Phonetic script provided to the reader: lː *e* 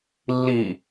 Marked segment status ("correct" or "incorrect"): incorrect